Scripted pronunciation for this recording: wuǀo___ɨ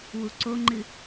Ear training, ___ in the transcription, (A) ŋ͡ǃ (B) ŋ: A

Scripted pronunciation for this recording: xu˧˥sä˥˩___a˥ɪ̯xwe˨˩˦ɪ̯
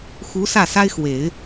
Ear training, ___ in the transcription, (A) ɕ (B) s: B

